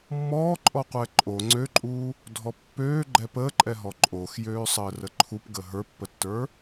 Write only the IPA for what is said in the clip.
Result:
mːɔːǃʼɔqʷɛ ǃʼo ŋ͡ǀøǃʼuː | dʱɔpːøː ɡ͡ǃɛpəːǃʼɛɦɔ ǃʼoxjøːsˤəː rəǃʰup ɡəːɦə˞pːətːə˞

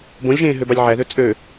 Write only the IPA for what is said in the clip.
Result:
bõlʲʒẽː ɦøbɑlʲʕæðø t͡sʼø

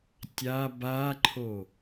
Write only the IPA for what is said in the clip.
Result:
tʲa baǃʰo

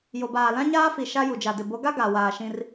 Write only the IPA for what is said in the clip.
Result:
jo˨baː˨ lã˦ɲaː˦fi˨ ʃa˦ju˨d͡ʒa˨dɪ˨ bo˨˦ɡa˦ ɡa˨ waː˨ʃĩ˦r

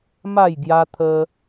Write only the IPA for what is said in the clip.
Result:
ma˥˧jɡja˦t̪ʰə˦

